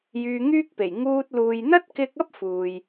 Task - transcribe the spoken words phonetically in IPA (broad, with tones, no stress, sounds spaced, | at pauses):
j yː˧ ŋ yː˥ k̚ p e˨˩ j ŋ uː˧ t̚ l uː˨ j n̪ ɐ˥ t̚ k ɪ˧ k̚ ɐ˥ p̚ f uː˨ j